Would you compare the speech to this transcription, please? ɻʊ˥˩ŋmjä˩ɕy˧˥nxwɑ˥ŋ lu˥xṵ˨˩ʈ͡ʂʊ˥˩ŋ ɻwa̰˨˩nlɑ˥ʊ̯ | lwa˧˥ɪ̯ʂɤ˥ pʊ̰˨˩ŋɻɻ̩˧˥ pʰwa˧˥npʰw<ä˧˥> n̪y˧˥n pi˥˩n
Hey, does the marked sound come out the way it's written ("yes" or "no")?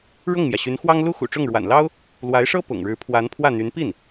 no